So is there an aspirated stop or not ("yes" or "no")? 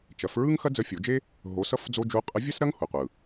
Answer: no